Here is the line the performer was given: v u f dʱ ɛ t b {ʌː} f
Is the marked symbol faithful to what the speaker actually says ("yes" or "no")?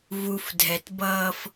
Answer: yes